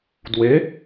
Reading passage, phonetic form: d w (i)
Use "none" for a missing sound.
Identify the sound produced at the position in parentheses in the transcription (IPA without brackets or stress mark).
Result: e